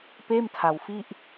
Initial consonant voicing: voiceless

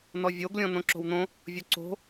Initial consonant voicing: voiced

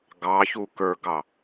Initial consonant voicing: voiced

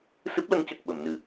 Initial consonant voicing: voiceless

